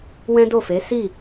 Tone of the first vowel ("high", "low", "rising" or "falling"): high